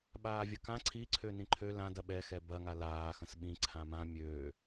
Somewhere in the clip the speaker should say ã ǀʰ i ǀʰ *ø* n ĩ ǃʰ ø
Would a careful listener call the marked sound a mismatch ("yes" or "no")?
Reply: no